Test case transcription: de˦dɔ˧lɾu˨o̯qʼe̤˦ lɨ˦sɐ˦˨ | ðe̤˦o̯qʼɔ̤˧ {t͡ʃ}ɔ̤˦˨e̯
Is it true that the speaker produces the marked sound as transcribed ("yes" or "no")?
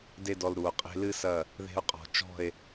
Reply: yes